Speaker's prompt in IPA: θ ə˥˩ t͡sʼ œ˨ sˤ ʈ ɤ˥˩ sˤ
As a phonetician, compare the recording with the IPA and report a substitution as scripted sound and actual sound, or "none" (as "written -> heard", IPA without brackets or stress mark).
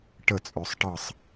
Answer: θ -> ʈ